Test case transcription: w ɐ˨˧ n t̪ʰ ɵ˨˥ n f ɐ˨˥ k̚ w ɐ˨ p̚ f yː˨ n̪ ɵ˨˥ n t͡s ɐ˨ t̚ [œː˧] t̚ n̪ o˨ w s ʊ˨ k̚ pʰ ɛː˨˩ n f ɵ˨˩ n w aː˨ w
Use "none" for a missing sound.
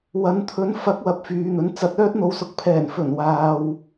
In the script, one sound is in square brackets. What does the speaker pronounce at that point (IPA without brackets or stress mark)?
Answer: œː˧